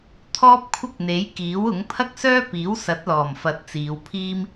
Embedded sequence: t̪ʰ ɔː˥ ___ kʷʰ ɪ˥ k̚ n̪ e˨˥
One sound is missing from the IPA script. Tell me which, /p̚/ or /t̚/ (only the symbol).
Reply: p̚